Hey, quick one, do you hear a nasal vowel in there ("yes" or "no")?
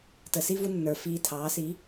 no